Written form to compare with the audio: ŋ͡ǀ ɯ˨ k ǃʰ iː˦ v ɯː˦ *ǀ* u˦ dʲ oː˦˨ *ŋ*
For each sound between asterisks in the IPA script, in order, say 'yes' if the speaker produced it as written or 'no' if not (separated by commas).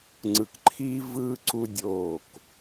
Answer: yes, no